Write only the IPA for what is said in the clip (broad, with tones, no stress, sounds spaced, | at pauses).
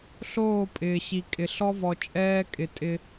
ɬ oː˦˨ pʼ ɪː˨ ɕ i˨ kʼ ɪ˨ ɬ ɔ˦ v ɔ˨ t͡ʃʼ ɛː˦ kʼ ɪ˨ tʼ ɪ˦